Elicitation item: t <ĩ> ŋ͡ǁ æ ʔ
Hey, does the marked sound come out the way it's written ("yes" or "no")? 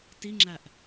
no